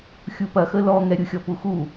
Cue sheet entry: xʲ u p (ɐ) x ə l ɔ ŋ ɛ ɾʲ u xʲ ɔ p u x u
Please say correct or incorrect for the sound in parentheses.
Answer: correct